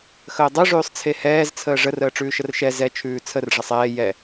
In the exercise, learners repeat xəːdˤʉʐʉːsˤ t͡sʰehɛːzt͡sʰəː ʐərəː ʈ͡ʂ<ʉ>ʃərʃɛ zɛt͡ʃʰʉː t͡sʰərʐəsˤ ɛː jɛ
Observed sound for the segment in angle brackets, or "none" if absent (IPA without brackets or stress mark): ʉː